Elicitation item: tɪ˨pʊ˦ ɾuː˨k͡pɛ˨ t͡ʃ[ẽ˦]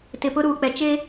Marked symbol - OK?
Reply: no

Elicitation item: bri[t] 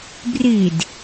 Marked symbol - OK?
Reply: no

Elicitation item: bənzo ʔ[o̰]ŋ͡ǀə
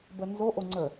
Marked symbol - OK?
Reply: no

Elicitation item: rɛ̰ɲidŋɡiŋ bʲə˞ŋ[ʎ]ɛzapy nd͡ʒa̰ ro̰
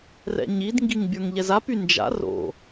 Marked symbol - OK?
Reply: yes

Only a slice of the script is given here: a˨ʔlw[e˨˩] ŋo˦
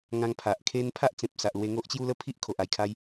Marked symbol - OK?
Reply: no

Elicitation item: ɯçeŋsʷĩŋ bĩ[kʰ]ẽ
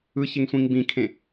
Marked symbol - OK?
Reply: yes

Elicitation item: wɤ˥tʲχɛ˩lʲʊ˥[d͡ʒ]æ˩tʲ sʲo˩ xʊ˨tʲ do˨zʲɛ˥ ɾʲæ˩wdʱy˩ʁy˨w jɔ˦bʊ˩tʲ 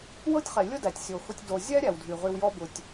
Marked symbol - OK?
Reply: no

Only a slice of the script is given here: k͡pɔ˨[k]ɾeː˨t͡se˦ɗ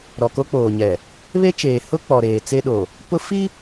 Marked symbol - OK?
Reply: no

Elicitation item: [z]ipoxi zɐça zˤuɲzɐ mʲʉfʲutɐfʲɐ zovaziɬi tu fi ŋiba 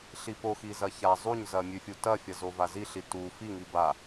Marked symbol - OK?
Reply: no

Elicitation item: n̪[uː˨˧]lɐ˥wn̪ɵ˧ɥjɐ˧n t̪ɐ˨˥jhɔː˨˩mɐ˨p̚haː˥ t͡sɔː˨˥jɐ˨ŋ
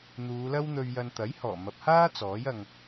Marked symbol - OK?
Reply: yes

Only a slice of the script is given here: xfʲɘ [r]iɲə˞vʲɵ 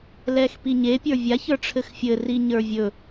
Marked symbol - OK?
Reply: yes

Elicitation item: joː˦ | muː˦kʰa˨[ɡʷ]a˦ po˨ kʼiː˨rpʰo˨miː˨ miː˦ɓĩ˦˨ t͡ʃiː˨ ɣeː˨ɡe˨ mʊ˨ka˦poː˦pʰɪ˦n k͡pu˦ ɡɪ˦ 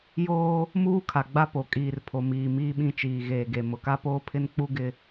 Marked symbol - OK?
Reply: no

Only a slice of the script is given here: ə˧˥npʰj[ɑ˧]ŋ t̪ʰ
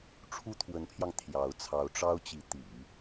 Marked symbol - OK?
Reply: yes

